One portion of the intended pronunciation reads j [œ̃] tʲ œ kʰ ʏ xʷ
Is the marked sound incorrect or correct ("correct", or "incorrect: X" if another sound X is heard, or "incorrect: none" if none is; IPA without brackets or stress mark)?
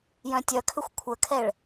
correct